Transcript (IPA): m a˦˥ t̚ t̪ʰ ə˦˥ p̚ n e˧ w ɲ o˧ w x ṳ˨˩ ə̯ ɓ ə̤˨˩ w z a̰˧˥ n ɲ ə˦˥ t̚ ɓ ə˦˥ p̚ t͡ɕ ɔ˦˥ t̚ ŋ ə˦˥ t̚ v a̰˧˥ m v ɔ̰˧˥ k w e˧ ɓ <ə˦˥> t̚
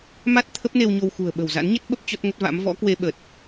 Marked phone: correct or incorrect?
incorrect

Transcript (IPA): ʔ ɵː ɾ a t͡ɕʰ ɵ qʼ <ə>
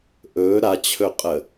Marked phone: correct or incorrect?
correct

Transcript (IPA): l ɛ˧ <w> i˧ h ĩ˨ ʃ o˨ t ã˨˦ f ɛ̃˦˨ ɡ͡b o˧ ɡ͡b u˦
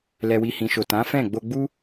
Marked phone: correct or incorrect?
correct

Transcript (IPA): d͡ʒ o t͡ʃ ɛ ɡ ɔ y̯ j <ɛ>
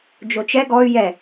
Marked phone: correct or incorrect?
correct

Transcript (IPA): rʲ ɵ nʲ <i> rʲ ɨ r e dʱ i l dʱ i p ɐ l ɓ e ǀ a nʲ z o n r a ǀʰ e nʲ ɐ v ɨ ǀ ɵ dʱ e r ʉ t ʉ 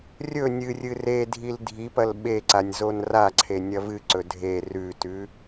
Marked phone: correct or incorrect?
incorrect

